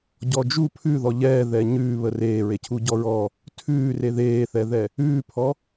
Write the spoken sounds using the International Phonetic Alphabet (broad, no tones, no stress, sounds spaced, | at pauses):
ɟ ɔ d͡ʒ u pʰ ʉ ð ɔ ʎ ɛː ð ɛ ɲ ʉː β ə r eː ɹ e cʰ u ɟ ɔ ɹ ɔ | tʰ ʉː r e ð eː θ ɛ ð ɛ | ʉː pʰ ɔ